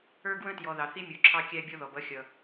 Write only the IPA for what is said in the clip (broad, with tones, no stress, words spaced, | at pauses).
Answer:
ə˞˦ɡwə̃˦tjɔ˨ ðɑ˨θi˦mʲu˨ ǁʰɑ˦kʲæ˦ bʲɔ˦ðɔ˨bʌ˦ xʲʌ˨